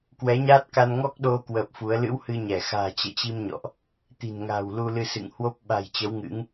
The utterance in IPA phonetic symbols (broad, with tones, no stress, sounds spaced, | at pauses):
k w ɛ˨˦ ɲ aː˦˥ t̚ k a˧ n ŋ ɔ˦˥ k̚ ɗ o˧ k w əː˨˩ p̚ f u˨˦ ə̯ l ɨ̰˧˥ w h ɨ˧ ɲ ɛ˧˩ x a̤ː˨˩ t͡ɕ ɛ̰˧˨ t͡ɕ i˧ m ɲ ɔ̰˧˨ ʔ | t̪ i̤˨˩ n ŋ a̤ː˨˩ w l u˧ l ɨ˧ s ɨ̰˧˨ ŋ h w o˦˥ p̚ ɓ a̤˨˩ j t͡ɕ ə˨˦ w ŋ ɨ̰˧˥ ŋ